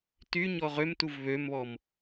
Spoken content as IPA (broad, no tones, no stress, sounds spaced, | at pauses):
t y ɲ ɔ ʁ ø m t u v β ø m β ɔ m